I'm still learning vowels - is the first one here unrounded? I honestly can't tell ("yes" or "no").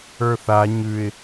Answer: yes